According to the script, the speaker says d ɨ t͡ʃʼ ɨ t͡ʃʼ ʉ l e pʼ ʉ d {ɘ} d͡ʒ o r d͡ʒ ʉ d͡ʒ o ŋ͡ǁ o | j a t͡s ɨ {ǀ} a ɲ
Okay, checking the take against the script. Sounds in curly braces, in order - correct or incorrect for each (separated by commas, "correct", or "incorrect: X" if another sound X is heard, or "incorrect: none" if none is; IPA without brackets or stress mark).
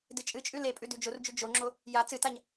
incorrect: ʉ, incorrect: t